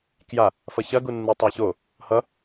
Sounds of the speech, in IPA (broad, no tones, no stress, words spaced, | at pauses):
kja | fʌçɐɡu nːɯtˤaço | hʌ